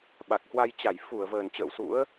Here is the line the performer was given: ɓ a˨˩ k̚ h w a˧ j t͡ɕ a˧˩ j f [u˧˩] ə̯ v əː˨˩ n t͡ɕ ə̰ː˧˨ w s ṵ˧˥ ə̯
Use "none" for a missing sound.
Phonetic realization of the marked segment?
u˧˩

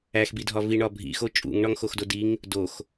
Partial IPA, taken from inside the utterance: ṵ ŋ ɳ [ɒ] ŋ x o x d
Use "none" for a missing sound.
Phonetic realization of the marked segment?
ɒ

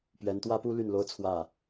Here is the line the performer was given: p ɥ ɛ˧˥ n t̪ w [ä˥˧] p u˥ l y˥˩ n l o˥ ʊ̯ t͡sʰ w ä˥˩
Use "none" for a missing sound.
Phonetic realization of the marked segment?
ä˥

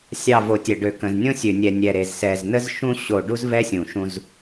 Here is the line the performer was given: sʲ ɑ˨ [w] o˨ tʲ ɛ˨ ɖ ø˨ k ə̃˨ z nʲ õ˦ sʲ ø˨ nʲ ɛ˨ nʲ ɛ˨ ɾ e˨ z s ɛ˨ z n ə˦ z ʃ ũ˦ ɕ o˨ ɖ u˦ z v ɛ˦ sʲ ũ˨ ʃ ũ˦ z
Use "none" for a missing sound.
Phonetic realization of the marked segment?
v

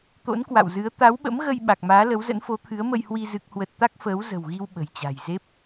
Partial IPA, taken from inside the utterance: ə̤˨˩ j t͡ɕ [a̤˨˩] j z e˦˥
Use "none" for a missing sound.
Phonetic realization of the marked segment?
a̤˨˩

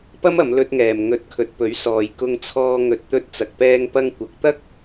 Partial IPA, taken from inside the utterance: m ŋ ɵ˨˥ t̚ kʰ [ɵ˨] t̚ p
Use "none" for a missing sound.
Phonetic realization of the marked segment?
ɵ˨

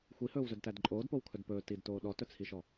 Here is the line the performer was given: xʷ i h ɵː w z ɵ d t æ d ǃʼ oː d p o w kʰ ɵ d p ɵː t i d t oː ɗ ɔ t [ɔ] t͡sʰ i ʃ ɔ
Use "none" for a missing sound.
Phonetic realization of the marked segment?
ɵ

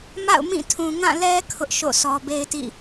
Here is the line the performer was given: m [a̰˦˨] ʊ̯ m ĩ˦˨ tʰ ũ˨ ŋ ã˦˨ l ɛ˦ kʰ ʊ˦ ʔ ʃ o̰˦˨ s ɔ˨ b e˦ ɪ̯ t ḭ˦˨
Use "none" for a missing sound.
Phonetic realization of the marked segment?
a̰˦˨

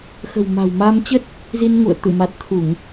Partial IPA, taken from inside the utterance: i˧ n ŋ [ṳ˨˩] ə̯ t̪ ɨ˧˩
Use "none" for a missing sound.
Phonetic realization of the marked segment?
ṵ˧˨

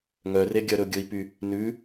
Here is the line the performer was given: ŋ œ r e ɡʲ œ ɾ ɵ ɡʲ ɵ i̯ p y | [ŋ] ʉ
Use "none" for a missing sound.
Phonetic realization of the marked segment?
n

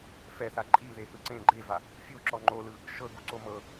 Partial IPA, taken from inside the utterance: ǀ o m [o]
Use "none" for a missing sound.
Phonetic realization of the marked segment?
ɤ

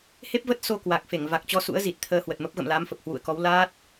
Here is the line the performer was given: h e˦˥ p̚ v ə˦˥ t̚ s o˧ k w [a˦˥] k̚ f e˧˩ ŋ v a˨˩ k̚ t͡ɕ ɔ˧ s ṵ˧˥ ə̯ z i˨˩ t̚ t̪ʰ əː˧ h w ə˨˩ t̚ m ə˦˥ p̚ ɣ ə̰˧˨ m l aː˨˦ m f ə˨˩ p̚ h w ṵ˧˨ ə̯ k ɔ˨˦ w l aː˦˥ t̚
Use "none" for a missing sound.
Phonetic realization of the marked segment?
a˨˩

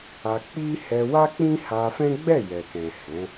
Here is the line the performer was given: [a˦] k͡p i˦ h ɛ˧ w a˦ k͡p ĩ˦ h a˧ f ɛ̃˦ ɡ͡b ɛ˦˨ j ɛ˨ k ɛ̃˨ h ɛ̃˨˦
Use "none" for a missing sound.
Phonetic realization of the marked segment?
a˧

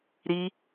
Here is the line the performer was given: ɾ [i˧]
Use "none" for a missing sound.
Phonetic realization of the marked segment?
i˧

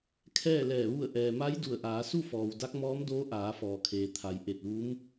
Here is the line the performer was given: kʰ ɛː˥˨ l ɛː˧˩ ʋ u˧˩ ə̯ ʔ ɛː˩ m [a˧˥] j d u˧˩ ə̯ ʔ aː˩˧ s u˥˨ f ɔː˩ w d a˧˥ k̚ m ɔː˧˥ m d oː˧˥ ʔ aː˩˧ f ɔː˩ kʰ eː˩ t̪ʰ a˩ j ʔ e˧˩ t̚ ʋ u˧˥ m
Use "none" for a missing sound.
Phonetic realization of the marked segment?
a˧˥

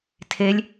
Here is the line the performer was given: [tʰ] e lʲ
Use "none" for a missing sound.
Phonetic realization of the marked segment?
tʰ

